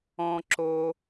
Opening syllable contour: low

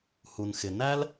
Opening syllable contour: low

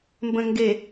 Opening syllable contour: low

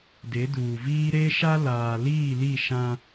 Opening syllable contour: rising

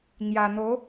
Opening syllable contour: low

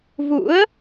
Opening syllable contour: rising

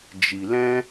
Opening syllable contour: low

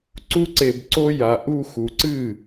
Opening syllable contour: high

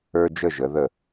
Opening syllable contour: high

